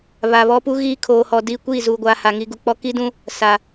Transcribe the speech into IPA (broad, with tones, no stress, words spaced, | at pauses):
βa˨βɔ˦pu˦ɣiː˦ kʰoː˨hɔ˨ di˦˨ kʷiː˦˨zuː˨ɡʷaː˨ ha˨ŋi˨ ɡu˨k͡pɔ˦ ki˦dũ˦ | sa˨